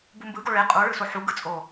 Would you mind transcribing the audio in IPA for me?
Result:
b u m b ɯ ɡ o ɭ e qʼ u ɭ ɯ s o ħ u ɡ ɯ t͡sʼ o

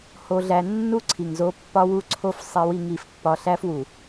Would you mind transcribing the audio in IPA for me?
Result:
h o˦ ɮ æ˦ nː u˦ ǀʰ i˨ ŋ z o˦ pː ɒ˦ w u˦ ǀʰ o˦ f sˤ e˦ w i˦ ŋ i˦ f pː ɒ˦ ɬ æ˦ f w u˨

